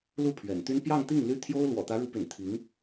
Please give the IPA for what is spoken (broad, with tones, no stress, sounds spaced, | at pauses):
l u˥˩ pʰ ɥ ɛ̰˨˩ n t̪ y˥ n p j ɑ˥˧ ŋ t̪ i˥˩ ŋ l y˥ t̪ʰ j o˥ ʊ̯ l w ɔ̰˨˩ t̪ ä˧˥ ɻ u˧˥ p y̰˨˩ n t̪ʰ i˧˥ ŋ